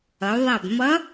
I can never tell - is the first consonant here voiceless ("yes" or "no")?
no